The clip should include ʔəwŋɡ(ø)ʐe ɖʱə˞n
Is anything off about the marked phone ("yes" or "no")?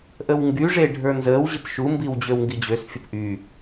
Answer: yes